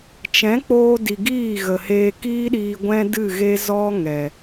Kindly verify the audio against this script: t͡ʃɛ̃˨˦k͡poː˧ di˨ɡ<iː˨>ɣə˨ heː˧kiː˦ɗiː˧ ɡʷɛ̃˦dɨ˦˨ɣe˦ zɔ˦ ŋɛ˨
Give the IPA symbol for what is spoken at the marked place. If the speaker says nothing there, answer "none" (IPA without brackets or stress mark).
iː˦˨